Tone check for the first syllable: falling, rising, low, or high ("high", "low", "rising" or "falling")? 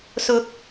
rising